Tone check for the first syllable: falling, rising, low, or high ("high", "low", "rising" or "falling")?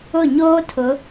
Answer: falling